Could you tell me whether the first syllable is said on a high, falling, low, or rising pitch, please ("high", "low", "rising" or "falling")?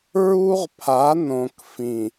high